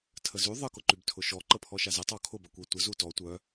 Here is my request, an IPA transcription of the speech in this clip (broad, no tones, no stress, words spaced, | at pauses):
tʰəzy ðˤə kʊǃybtʰʊʃɔ ǃəpʰɔʃazetˤ ɔkʰʊb ɐkʷetʷə zutɔ tʷœ